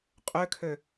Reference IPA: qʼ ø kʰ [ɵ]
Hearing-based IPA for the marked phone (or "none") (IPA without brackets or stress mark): ø